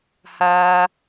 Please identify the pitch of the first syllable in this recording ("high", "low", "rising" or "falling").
high